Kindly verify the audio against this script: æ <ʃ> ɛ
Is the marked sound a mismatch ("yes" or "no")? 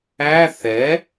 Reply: yes